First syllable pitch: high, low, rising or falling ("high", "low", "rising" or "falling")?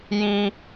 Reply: high